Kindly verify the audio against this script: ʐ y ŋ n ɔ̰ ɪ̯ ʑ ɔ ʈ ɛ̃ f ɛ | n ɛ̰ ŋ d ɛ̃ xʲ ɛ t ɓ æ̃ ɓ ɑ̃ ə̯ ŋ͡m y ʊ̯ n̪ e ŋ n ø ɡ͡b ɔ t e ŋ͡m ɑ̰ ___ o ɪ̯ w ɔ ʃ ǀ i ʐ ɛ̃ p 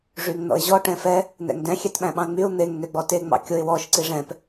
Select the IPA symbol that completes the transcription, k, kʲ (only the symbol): kʲ